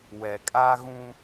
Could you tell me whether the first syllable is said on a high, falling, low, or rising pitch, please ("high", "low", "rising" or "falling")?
low